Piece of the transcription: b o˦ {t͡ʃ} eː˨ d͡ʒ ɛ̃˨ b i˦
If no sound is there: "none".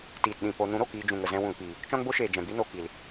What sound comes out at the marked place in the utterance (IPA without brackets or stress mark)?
ʃ